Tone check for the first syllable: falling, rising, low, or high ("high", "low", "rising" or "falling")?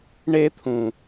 high